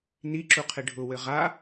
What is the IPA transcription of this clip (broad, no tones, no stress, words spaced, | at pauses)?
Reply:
niǁuqʰɪ ɖʱʊwɘ ʁa